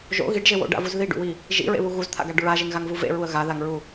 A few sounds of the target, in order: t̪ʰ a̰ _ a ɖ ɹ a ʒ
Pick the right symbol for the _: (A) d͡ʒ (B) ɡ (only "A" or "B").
B